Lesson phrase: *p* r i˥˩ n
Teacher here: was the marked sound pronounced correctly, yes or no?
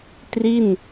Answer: no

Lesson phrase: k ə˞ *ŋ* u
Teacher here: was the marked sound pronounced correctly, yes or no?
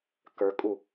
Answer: no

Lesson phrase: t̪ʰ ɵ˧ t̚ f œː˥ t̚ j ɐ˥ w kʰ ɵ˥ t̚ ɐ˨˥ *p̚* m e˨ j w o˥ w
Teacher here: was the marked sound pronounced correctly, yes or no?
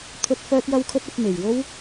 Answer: yes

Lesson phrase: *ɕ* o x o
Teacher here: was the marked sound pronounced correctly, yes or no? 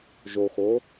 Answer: no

